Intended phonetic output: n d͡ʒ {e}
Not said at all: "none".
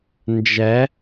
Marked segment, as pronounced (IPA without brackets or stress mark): ɛ